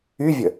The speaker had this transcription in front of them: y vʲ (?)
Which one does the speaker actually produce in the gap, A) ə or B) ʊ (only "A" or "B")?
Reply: A